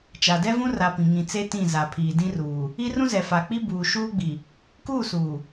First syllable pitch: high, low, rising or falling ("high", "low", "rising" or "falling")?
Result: low